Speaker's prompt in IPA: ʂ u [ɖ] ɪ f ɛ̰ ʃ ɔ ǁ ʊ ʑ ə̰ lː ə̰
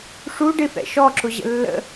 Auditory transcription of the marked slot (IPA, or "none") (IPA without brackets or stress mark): ɖ